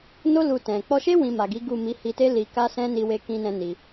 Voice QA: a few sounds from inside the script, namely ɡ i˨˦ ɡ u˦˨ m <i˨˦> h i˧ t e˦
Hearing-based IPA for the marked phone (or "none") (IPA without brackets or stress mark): i˨˦